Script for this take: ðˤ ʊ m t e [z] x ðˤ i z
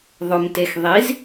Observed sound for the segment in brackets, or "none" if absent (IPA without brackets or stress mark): none